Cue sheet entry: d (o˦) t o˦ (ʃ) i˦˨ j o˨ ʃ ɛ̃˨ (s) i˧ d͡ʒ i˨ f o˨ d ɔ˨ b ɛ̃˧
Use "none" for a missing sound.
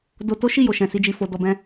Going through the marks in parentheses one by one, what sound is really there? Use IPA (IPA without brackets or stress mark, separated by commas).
o˦, ʃ, s